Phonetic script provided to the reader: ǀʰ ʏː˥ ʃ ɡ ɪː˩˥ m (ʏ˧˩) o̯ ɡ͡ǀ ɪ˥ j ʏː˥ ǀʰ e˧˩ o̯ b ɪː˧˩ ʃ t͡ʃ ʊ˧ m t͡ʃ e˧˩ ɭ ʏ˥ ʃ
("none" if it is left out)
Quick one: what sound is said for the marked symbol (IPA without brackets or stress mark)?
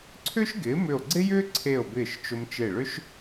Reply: ʏ˧˩